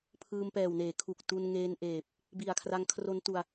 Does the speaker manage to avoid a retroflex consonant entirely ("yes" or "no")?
yes